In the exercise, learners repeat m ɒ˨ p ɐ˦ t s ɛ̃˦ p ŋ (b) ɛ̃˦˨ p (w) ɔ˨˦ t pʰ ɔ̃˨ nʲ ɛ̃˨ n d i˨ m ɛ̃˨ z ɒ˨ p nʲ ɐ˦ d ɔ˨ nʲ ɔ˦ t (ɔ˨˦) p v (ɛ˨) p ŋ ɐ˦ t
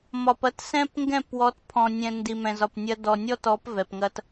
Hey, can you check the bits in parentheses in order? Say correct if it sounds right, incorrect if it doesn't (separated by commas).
incorrect, correct, correct, correct